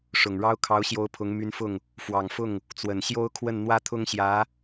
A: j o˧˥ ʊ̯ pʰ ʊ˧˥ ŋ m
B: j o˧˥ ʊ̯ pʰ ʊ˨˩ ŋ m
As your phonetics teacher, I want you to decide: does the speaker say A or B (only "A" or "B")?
A